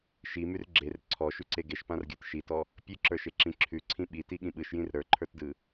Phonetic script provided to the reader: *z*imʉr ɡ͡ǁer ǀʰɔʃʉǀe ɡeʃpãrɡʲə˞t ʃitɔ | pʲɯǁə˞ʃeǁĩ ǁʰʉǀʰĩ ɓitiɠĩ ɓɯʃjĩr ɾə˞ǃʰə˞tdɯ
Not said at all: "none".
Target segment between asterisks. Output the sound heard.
ʃ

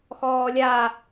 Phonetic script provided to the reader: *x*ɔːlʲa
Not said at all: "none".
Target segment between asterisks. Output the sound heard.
x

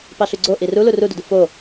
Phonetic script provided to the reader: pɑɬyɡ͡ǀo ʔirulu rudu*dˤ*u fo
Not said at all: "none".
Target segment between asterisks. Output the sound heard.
d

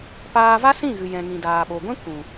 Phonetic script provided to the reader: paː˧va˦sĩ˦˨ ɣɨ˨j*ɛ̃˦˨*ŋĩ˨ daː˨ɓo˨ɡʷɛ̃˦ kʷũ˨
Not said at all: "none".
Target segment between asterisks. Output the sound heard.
ɛ̃˨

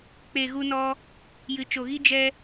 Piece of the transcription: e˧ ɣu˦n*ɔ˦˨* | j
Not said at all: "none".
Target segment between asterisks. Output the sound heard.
ɔ˦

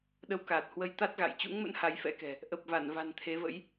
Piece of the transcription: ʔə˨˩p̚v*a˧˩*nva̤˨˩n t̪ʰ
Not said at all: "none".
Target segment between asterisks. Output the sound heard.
a˧˩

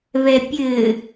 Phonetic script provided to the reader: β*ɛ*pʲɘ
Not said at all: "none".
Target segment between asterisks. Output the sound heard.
ɛ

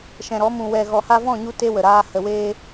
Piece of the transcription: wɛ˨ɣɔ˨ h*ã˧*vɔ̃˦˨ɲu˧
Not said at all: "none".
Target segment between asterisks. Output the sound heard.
a˧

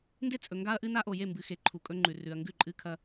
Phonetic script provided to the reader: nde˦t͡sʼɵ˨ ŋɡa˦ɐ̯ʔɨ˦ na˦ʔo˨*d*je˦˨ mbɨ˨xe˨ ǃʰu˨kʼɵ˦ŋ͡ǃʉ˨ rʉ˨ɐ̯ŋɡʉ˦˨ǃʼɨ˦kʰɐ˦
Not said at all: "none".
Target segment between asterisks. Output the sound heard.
none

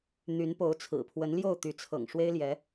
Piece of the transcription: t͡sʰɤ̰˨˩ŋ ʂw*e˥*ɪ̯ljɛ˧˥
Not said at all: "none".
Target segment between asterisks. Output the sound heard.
e˥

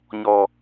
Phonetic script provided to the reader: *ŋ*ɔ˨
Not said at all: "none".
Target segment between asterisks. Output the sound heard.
ɲ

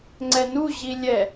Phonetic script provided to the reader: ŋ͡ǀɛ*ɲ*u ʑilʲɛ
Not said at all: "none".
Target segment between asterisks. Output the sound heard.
n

